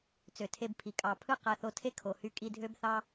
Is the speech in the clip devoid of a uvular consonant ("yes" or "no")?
no